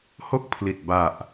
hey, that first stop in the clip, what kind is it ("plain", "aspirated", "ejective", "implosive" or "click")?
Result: plain